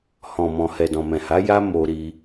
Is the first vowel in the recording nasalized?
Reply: yes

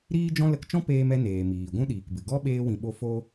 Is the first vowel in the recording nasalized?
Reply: no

